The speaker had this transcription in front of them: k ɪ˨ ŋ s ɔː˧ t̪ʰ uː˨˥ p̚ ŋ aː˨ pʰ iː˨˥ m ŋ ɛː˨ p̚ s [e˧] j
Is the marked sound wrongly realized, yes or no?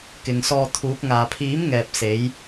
yes